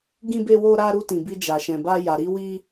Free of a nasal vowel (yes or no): no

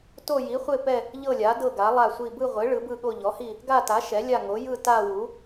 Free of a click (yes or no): yes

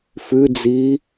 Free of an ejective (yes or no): yes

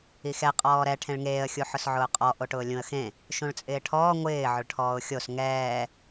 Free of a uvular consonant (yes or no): no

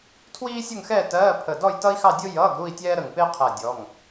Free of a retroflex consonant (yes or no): yes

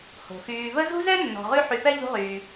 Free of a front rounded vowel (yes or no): no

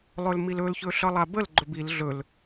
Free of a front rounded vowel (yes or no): yes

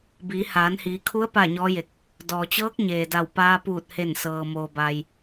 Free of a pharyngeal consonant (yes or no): yes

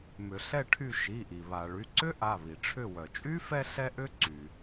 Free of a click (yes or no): no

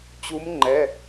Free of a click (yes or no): no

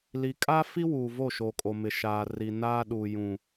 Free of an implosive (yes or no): no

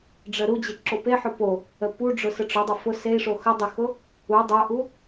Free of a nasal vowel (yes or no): yes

